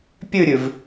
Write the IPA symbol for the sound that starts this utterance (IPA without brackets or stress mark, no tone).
pʲ